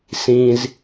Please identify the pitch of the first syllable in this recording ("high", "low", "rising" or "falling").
low